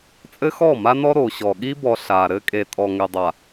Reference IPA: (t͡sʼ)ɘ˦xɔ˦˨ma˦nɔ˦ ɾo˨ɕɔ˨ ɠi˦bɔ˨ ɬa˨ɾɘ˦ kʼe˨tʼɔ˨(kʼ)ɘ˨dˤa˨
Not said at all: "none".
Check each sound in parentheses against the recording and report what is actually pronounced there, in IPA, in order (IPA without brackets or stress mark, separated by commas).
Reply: t͡sʼ, ŋ